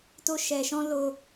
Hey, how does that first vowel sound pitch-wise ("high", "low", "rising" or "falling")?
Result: high